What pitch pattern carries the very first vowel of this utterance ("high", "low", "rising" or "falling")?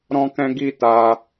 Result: high